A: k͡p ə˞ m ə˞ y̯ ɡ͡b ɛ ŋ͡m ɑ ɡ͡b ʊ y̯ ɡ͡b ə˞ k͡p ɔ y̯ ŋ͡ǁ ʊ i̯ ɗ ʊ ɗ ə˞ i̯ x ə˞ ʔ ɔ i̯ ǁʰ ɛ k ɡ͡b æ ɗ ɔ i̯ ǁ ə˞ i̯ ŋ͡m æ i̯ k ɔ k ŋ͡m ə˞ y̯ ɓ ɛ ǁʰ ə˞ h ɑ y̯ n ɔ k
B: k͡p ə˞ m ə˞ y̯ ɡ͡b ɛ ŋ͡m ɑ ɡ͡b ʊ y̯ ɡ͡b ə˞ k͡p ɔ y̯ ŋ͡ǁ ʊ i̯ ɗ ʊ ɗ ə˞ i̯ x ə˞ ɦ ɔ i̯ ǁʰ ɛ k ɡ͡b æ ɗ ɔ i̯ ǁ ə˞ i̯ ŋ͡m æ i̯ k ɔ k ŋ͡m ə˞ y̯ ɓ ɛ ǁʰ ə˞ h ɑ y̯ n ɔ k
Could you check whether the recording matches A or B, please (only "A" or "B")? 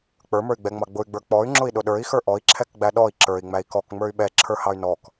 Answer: A